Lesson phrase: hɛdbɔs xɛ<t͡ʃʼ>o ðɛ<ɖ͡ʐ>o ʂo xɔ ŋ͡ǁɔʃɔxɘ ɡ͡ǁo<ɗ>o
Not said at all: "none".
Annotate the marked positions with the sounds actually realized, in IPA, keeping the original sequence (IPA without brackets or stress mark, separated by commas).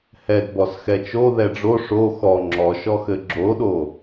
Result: t͡ʃ, ɖ͡ʐ, ɗ